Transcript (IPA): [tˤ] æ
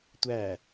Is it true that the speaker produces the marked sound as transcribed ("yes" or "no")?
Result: no